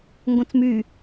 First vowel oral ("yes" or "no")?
no